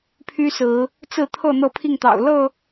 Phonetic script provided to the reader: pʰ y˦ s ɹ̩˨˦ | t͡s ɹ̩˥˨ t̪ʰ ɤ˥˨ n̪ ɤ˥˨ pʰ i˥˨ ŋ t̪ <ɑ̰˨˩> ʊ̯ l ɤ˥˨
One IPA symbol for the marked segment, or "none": ɑ̰˨˩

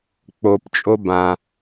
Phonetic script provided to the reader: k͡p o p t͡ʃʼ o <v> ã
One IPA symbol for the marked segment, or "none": b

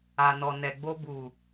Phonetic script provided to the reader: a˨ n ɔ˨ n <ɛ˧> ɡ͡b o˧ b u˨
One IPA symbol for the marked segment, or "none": ɛ˨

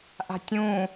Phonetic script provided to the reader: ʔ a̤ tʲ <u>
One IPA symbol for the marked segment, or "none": ũ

